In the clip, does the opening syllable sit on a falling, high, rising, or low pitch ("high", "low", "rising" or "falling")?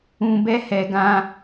low